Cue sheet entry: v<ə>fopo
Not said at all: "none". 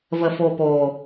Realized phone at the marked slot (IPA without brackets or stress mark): ə